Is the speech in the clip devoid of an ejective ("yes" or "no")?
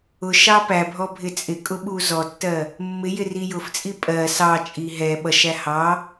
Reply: no